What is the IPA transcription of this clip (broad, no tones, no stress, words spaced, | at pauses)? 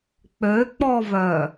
k͡pøk͡pɔvœ